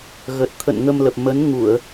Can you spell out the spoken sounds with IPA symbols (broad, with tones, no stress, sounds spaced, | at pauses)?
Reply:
ɣ ə˨˩ t̚ t̪ʰ ə̰˧˨ n ŋ ə˧ m l ə˨˩ p̚ m ə˨˦ n ŋ u˧˩˨ ə̯